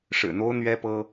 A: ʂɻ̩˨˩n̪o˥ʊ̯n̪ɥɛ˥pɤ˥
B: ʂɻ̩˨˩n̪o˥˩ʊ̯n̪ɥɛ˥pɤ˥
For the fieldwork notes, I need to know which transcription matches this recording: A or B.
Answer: A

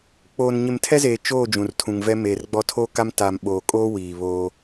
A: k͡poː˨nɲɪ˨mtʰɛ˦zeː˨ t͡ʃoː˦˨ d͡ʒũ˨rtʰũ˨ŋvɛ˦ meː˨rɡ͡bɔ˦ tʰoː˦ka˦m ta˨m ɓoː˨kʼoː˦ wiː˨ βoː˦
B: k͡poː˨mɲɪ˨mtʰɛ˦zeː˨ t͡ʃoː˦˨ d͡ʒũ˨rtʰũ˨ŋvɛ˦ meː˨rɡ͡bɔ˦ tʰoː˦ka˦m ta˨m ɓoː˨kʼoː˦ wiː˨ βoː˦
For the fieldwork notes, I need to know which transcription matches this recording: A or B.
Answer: A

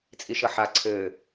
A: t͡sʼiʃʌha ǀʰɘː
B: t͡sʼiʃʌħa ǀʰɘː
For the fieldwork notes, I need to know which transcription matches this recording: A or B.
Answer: B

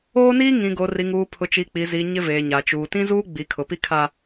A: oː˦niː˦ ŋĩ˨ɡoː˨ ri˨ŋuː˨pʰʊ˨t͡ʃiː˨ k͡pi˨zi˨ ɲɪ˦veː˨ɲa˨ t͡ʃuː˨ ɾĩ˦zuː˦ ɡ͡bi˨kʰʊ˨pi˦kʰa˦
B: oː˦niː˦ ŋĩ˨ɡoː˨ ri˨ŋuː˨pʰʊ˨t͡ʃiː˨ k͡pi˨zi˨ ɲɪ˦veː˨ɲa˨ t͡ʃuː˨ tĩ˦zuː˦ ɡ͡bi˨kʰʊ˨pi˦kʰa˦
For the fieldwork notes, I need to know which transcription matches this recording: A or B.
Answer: B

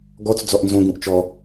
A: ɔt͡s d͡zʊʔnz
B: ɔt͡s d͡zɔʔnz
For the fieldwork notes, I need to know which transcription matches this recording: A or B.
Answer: B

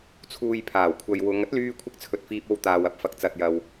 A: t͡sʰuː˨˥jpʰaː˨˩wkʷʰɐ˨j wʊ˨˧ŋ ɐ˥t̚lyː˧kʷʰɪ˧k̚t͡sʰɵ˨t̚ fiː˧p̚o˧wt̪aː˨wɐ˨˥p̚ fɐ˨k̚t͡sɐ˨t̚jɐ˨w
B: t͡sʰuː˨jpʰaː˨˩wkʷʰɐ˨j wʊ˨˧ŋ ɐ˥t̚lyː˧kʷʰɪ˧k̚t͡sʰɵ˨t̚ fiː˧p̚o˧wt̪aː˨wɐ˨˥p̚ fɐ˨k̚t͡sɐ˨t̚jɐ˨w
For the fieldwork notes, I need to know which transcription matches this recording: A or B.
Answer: B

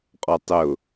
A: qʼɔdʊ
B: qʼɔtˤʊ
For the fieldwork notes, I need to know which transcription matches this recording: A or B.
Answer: B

